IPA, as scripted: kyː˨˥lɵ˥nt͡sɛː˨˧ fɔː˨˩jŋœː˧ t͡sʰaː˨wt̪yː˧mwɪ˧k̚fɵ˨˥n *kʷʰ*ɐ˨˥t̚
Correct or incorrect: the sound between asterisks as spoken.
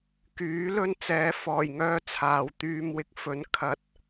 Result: incorrect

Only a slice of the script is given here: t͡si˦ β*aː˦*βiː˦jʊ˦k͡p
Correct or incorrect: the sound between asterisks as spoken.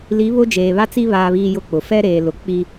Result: correct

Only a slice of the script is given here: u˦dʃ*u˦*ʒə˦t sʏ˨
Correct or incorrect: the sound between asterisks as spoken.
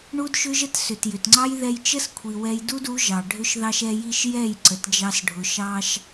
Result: incorrect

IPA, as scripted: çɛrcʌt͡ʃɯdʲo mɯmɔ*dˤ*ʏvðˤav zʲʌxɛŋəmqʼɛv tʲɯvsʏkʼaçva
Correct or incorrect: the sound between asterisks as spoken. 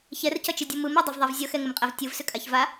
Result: correct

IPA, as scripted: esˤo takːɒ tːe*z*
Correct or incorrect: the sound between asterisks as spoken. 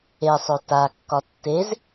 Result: correct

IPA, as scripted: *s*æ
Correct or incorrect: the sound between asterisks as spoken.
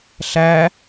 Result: incorrect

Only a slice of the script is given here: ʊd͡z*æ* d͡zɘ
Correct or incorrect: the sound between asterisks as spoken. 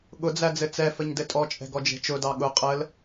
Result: correct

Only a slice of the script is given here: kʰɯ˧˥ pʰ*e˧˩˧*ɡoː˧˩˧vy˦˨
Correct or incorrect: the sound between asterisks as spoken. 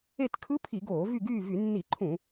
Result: incorrect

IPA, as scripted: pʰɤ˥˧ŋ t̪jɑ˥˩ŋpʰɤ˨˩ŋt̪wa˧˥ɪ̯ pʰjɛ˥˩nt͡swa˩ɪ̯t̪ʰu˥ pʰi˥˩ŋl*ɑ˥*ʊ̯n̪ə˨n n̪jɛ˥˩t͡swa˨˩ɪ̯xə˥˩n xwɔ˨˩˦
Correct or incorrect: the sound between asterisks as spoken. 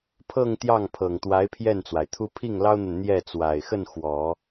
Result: correct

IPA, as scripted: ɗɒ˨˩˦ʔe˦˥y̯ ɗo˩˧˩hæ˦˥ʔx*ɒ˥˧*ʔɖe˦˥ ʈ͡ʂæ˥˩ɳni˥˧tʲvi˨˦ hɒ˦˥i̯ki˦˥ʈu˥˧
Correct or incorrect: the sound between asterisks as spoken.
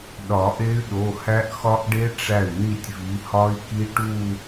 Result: incorrect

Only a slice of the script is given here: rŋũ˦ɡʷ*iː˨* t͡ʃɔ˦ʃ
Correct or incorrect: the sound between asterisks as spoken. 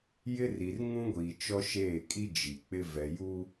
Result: correct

